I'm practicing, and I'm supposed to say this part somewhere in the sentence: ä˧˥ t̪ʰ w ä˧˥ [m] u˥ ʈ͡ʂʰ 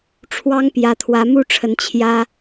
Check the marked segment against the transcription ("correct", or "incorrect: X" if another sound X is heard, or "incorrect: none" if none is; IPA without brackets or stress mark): correct